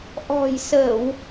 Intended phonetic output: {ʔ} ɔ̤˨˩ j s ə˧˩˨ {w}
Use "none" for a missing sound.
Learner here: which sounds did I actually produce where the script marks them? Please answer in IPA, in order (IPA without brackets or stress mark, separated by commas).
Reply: ʔ, w